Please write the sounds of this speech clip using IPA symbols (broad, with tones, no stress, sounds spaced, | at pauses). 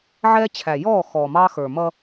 ʕ ɛː˦ t͡ɕʰ æ˨ j ɔː˦˨ x ɔː˨ m ɑ˦ x ə˞˨ m ʌ˦